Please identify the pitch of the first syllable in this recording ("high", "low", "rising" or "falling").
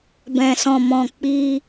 low